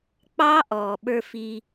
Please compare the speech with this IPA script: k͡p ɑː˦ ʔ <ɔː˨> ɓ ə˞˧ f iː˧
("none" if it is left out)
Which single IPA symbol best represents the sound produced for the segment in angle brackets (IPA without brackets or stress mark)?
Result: ɔː˨